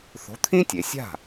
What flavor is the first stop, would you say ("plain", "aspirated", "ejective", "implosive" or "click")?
aspirated